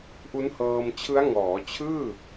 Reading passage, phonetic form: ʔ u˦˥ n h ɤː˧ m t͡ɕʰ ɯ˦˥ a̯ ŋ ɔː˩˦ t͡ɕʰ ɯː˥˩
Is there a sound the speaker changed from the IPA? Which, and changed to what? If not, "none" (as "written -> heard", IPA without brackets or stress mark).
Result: none